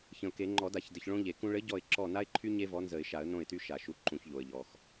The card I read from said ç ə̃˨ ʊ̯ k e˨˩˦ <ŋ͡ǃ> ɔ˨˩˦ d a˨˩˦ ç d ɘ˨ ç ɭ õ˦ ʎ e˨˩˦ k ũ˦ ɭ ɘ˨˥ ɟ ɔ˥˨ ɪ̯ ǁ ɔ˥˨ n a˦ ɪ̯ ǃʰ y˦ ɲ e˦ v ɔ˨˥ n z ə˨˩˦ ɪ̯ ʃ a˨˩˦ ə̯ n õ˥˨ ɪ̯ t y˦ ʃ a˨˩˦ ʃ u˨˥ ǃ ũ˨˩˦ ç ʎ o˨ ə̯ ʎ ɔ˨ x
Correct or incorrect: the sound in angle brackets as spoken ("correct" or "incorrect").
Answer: correct